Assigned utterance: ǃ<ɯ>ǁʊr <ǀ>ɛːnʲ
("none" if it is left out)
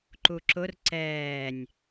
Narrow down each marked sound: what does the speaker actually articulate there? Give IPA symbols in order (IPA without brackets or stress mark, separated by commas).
u, ǀ